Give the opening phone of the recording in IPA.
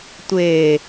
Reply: tʷ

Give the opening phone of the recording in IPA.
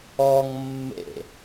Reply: ɔ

